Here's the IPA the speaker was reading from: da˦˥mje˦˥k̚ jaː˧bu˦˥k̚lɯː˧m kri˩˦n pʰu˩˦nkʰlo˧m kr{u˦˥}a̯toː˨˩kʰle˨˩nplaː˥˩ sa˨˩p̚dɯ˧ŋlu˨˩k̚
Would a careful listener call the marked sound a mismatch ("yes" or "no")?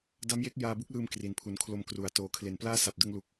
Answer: yes